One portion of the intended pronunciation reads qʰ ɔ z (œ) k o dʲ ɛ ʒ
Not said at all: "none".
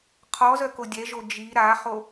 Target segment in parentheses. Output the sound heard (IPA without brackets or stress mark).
œ